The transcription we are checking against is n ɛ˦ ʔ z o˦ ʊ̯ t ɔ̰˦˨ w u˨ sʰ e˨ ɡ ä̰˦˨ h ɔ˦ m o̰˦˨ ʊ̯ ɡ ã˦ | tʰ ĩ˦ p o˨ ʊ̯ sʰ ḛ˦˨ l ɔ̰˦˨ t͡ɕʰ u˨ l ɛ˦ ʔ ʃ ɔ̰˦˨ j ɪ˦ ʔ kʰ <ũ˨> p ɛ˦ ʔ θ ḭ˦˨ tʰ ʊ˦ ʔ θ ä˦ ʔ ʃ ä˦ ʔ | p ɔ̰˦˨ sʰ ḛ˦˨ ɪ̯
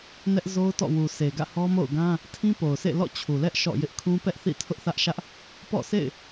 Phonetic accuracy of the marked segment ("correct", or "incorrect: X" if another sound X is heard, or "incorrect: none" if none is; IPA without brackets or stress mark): incorrect: ũ˦